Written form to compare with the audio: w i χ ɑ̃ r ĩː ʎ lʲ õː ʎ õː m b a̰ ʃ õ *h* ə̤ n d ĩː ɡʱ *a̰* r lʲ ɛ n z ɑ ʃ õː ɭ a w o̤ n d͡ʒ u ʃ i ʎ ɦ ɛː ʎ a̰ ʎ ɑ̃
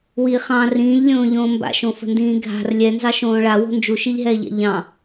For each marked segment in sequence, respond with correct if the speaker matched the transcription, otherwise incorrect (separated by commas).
incorrect, incorrect